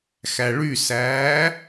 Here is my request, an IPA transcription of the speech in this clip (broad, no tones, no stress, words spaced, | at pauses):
xæɭysæː